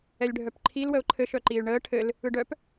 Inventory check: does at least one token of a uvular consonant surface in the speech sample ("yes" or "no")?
no